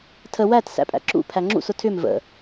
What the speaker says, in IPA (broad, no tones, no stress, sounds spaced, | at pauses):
tʰ ə w æ t s æ̰ pʼ æ̰ ǁ ṵ pʰ æ ŋ͡ǁ ṵ s ʊ tʰ ʏ m v ə̰